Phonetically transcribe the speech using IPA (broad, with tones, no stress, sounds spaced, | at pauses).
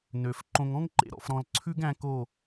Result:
n ø˨ f ǃ õ˨ ŋ ɔ̃˦ ŋ ǃ ḛ˧ ɾ ɔ̰˨ f ɾ ɔ̃˨ l ǀʰ ʉ˦ ɡ æ̃˧ k o˦˨